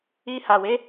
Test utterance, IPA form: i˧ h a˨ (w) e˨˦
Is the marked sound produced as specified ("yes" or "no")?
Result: yes